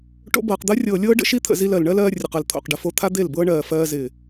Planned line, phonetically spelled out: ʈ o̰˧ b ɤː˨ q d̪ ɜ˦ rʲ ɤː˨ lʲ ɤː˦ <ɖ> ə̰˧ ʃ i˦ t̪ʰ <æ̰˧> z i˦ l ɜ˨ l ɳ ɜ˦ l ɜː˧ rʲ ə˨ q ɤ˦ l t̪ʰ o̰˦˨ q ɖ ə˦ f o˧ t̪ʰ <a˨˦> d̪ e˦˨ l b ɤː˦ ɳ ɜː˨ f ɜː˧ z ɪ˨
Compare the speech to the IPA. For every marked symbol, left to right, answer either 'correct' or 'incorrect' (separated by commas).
correct, incorrect, incorrect